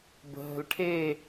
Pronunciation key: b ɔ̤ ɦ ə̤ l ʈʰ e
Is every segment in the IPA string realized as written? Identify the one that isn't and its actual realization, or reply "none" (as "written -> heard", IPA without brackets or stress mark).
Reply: ɔ̤ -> ə̤